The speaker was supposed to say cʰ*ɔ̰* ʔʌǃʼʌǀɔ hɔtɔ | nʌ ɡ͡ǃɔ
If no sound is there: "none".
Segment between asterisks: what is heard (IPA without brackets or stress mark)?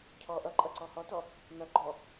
ɔ